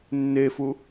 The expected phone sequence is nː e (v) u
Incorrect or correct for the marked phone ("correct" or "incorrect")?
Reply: incorrect